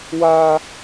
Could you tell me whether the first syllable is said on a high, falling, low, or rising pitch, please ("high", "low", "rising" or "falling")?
high